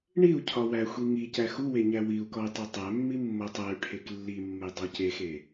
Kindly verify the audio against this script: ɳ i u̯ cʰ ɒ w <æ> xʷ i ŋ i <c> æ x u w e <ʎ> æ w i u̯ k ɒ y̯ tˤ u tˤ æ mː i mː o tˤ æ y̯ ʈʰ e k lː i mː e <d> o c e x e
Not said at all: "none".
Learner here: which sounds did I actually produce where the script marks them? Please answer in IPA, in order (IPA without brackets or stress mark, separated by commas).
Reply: æ, c, ɲ, dˤ